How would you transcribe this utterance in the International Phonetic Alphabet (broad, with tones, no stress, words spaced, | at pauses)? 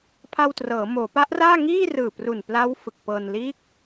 pʰa˧wtrɤː˩˦ moː˩˦pa˦˥ʔraː˥˩ŋiː˥˩ rɯː˨˩pru˨˩npla˦˥w fɯ˨˩k̚pɤː˧n liː˦˥k̚